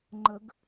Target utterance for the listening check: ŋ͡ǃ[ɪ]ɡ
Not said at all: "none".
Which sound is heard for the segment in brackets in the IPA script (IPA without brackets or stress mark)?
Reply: ə